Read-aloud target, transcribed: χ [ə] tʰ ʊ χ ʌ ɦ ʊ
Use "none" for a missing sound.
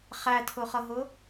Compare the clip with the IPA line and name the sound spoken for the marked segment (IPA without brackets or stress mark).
æ